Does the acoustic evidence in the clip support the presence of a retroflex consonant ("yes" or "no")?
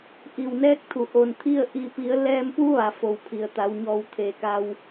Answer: no